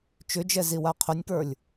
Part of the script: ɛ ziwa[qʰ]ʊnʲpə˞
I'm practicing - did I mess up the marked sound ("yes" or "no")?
no